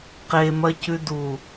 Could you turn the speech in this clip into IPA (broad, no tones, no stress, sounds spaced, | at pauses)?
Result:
q e m ɐ c ʉ d u